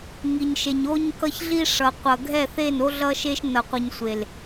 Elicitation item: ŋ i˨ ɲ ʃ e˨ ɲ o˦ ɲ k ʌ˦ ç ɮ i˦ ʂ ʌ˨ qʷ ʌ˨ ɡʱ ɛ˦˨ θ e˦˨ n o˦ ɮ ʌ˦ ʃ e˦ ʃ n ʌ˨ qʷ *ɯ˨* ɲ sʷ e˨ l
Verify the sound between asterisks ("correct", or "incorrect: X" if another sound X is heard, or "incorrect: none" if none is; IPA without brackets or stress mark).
correct